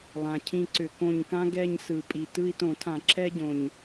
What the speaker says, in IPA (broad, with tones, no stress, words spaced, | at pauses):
lˠã˨˩cʰĩ˦˨ ǀʏ˧˩˧kõ˦˨ɲkã˥ ɡɛ˦˨ɲ sɯ˨˩pʼi˨˩ tɯ˦˨i̯tõ˧˩˧tʰã˧˩˧ ǁɛ˥ ɟõ˨˩ɲ